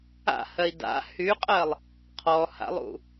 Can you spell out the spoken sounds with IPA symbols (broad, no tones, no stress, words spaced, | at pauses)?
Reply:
a̰hɜi̯ da̰ hyqʼɜlˠ | qʰɔha̰lˠṵ